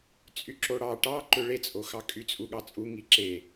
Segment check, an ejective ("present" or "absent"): present